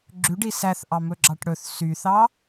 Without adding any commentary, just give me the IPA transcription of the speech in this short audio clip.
ɡ͡ǁ ʉ ɖ i s æ θ ʔ ɑ m ɵ ɡ͡ǁ ɑ ʈ ɽ ɵ θ s y θ ɑ

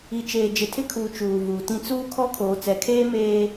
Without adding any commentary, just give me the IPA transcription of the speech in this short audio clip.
i˨ t͡ʃ eː˨ d͡ʒ ɪ˨ tʰ ɪ˦ kʰ uː˨ t͡ʃ uː˨ v uː˨ t ĩ˦ t͡s uː˦ kʰ ɔ˦ kʰ oː˨ t͡s ɛ˨ kʰ eː˦ m eː˦

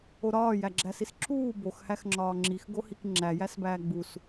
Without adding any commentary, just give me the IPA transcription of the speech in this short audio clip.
o ɾ ɒː j æ ɡ͡ǁ æ s i s ǁʰ uː b o x h æ x ŋ͡ǁ ɒː ŋ͡ǁ i x ɡ o h i k ŋ͡ǁ æ j æ s b æː ɡ͡b u s

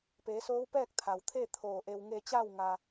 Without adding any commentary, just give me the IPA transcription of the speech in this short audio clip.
p eː˩˧ s oː˧˥ w p ɛː˥˨ k̚ t̪ʰ a˩ w t̪ʰ e˥˨ t̪ʰ oː˧˩ ʔ e˧ w ŋ e˧ t͡ɕ a˥˨ w ŋ a˧

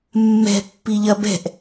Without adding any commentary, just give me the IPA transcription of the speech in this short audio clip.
mː ɛ̤ pː i ʎ ɐ b ɛ̤ ʔ

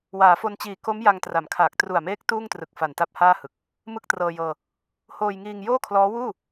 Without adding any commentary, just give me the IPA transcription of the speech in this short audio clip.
w aː˩˦ f o˧ n t͡ɕ iː˨˩ k o˦˥ m j a˧ ŋ t r a˩˦ m kʰ aː˨˩ k̚ t r u˨˩ a̯ m eː˦˥ k̚ t uː˥˩ ŋ t r ɯ˨˩ k̚ f a˨˩ n t a˥˩ p̚ h aː˥˩ h ɯ˨˩ k̚ | m ɯ˥˩ k̚ t r ɤː˧ j ɤː˧ | h oː˧ j ŋ iː˧ ŋ j oː˥˩ kʰ l ɔː˦˥ w uː˥˩

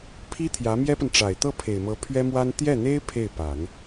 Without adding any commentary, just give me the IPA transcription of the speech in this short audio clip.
pʰ i˥ t̪ʰ j ä˧˥ m j ɛ˥ p ə˨ n ʈ͡ʂ a˨˩ ɪ̯ t̪ ɤ˥˩ pʰ e˨˩ ɪ̯ m ɤ˧˥ pʰ ɥ ɛ˥ m w a˥ n t̪ j ɛ˥˩ n̪ e˥ ɪ̯ pʰ e˥˩ ɪ̯ p a˨˩˦ n

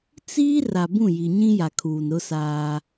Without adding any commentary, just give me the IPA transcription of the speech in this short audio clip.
t͡s iː˦ r a˨ b ũ˦˨ j i˨ ɲ ĩ˦ j a˨ kʰ uː˨ n ɾ ʊ˦ s aː˦

